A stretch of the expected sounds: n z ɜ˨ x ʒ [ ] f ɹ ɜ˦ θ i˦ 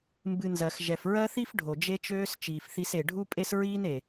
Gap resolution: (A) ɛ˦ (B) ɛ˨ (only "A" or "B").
B